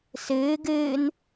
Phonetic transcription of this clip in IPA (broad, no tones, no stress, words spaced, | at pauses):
sɨː ɡɨːn